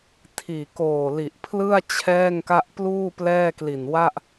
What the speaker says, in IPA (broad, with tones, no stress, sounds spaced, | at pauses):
tʰ iː˨˩ k oː˨˩ l i˨˩ ʔ pʰ l ɯ˥˩ a̯ t͡ɕʰ ɛː˥˩ ŋ k a˥˩ ʔ p l uː˥˩ p l ɛː˥˩ k l i˨˩ n w a˥˩ ʔ